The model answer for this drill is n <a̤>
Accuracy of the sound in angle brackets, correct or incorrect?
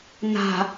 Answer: correct